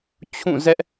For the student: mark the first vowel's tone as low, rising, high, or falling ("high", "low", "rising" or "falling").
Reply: falling